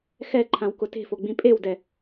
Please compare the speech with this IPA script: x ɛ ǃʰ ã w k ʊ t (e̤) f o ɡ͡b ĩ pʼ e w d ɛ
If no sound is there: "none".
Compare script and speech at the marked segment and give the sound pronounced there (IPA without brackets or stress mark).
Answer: e̤